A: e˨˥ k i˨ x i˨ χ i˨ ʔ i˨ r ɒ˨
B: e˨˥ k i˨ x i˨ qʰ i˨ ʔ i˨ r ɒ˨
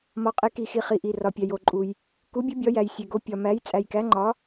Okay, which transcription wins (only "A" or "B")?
A